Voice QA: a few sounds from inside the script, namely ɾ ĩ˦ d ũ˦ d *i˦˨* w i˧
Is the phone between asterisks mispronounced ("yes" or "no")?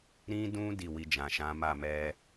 no